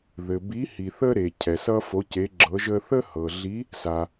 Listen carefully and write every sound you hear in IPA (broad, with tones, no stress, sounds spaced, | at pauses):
ð ɘ˨ b i˧˥ h i˨ θ ə˥ ɾ e˨ cʰ ɛ˨ s ʌ˥ f o˧˥ c e˧˥ ɡ͡ǁ ɤ˧˥ ʒ ə˥ θ ə˥ h ɤ˨ ɮ i˧˥ | s a˨